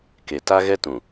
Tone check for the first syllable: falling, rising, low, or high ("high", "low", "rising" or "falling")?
low